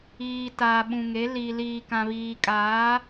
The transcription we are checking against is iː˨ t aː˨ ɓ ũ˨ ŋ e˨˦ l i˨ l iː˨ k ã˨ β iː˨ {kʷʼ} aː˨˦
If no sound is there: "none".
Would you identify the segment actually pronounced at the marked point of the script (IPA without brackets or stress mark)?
kʼ